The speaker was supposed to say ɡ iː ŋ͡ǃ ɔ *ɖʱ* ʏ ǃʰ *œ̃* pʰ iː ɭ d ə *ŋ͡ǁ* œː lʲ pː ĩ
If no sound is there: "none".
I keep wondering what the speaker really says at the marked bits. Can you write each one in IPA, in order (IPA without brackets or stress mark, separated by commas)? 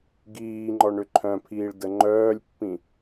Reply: ɳ, œ̃, ŋ͡ǃ